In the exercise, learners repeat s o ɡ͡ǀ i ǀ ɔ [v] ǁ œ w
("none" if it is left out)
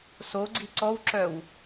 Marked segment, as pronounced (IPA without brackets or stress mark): w